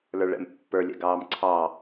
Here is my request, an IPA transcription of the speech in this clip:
l ə˞ ɭ ɛ̰ m pː ə˞ lʲ ɛ̰ ɡ ɑː m ǀʰ ɑ

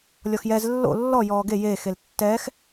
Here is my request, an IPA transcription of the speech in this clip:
lʲ ɔ x j ɛ z lː o̰ lː ɔ j ɔː ɡ e j e x e l tː ɛː x

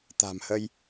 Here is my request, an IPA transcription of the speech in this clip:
t̪ a̤˨˩ m h ə˧ j

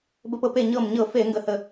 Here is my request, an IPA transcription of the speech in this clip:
b ə˧˩˧ p ɤ˧˩˧ p e˧˩ ɲ ɤ˧˩ m ɲ ɤ˧˩˧ f e˧˩˧ ŋ ɡ ə˧˩ h ə˧˩

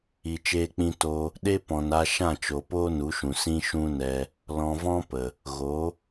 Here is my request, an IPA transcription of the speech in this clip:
i˧ t͡ʃ eː˦ k͡p ĩ˦ t o˧ | ɗ e˦ p ɔ̃˨ n a˧ ʃ ã˦˨ t͡ʃ o˨ p oː˦ n u˨˦ ʃ ũ˨ s ĩ˦ ʃ ũ˦ n ɛ˧ | l ɔ̃˧ v ɔ̃˦ p ə˨ | ɣ o˨˦

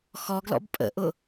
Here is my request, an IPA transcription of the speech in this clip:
x ɔ ɡ l ɔ̰ b pʼ ə̰ ʔ ʊ

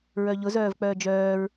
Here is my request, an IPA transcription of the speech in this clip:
ɹ œ ʎ ʊ z œː v k͡p œː d͡ʒ œː ɹ

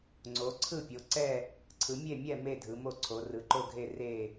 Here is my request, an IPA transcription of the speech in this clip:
ŋ͡ǀ o˩˧ ǀʰ ɯ˦˨ pʲ o˩˧ ǀ ɛ˦˨ | ǀʰ ɯ˩˧ mʲ e˦˨ mʲ ɛ˦˨ m e˦˨ dʱ ɯ˩˧ m o˦˨ ǀʰ o˩˧ r ɯ˩˧ ǃ o˦˨ ɡʱ e˦˨ r e˦˨

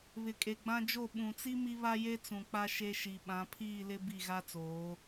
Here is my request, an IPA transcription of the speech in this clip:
β ɪ˨ kʼ e˨ ɡ͡b ã˦ d͡ʒ o˦˨ ɓ ũ˨ t͡s i˦ m i˦ β a˦ j e˦ t͡s ũ˨ k͡p a˦ ʃ e˦ ʃ i˨ ɓ ã˨˦ pʰ iː˦˨ l ɪ˦ b i˦˨ ɣ a˦ t͡s oː˨˦

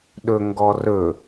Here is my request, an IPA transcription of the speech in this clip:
ɗ ɵ ŋ ɡ ɔ r ɵ

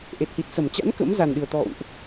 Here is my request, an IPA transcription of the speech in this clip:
ʔ e˨˩ t̚ h i˨˩ t̚ s ə˧˩ m t͡ɕ a̰˧˥ n k ə̰˧˥ m z a˨˩ n ɗ ɨ˨˩ ə̯ t̪ ɔ̰˧˨ w ʔ

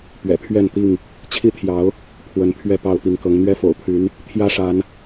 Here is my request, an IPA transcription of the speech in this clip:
p ɥ ɛ̰˨˩ pʰ ɥ ɛ˥˨ n t̪ i˥˨ ŋ | t͡ɕʰ i˦ t̪ʰ j ɑ˨˦ ʊ̯ | pʰ w ə˨˦ n pʰ ɥ ɛ˥˨ p ɑ˥˨ ʊ̯ p i˨˦ ŋ k ɤ˨˦ ŋ n̪ ɥ ɛ˦ f o̰˨˩ ʊ̯ pʰ y˨˦ n | t̪ʰ j ä˦ ʂ a˨˦ n

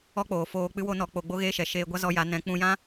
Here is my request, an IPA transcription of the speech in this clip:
ɔ˦ k͡p oː˨ f oː˧ k͡p ɨ˦ w o˦ n ɔ˧ k͡p o˧ ɡ͡b o˦ ɣ eː˦ ʃ ɛ˨ ʃ eː˧ ɡʷ a˦ z ɔ˧ j a˨˦ n ɛ̃˨˦ k͡p ũ˧ j ã˦

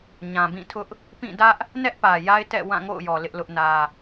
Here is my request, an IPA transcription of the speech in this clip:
ɲ ã˨ b ĩ˦˨ tʰ ʊ˦ ʔ | p ĩ˦˨ d ä˦ ʔ | n ɛ˦ ʔ p ä˨ j a˦ ɪ̯ t ɛ̰˦˨ w ã˦˨ ŋ o̰˦˨ ʊ̯ j ɔ˨ l ɪ˦ ʔ l ʊ˦ ʔ n ä˦

